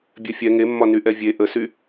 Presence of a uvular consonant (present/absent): absent